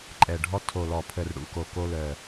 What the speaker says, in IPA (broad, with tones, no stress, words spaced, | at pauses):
ǃʼɛ˨˩ɖʱɔ˧ tʰo˨˩lɔ˨˩pʰə˨˩r ɽṵ˨˩ko˨˩ ko˧lœ˨˩